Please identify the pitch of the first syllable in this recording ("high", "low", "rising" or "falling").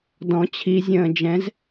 rising